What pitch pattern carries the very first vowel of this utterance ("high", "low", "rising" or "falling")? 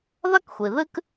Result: high